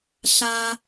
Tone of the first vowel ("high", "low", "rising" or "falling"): high